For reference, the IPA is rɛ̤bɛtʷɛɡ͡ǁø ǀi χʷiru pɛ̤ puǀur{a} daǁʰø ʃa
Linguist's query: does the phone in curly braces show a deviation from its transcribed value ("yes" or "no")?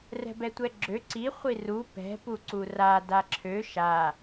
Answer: no